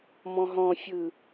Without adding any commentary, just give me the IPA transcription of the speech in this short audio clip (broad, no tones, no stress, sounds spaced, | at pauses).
m ɔ̃ ɦ ɔ̃ fʲ ɯ